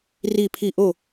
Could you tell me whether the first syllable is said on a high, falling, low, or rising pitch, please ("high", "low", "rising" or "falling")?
falling